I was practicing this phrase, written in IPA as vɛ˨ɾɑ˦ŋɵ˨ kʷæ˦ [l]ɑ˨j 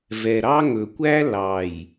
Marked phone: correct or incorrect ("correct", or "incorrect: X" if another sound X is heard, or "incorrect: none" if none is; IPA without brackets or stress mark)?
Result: correct